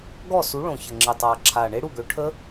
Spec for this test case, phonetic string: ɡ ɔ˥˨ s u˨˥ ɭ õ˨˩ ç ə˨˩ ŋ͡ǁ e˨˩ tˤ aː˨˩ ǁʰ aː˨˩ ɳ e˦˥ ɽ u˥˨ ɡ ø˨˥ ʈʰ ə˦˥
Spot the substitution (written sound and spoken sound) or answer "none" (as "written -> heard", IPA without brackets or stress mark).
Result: none